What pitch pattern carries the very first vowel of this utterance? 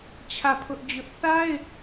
falling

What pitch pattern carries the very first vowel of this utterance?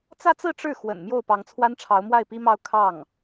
falling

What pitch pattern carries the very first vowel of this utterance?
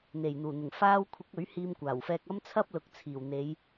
low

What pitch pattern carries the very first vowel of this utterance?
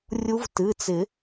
rising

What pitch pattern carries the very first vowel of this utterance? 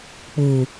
low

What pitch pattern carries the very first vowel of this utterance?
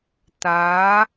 rising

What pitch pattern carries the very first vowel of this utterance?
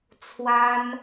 high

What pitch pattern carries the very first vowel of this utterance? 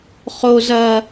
low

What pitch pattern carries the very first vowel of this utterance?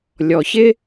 low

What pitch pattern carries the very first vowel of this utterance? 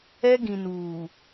high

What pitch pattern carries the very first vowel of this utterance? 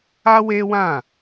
high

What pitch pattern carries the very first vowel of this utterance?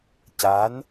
rising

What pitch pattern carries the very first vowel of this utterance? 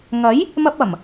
rising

